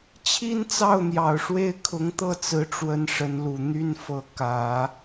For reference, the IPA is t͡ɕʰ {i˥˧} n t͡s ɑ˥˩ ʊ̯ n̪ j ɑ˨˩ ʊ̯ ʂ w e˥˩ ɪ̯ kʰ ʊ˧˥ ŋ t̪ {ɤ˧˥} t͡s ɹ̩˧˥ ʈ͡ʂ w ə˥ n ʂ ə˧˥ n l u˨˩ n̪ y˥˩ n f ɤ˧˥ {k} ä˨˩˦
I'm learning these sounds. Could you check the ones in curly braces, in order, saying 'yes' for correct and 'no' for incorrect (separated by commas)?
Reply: no, no, yes